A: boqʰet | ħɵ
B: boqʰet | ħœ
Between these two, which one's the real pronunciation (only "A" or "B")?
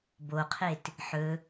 A